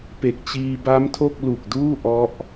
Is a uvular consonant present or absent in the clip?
absent